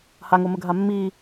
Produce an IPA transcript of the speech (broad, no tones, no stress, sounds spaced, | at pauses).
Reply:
h a ŋ o m ə ɡʱ a mː i